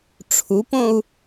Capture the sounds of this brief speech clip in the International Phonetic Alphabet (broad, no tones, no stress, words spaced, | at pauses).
ʈ͡ʂʰupõu̯